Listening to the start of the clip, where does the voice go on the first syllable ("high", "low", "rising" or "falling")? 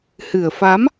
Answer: low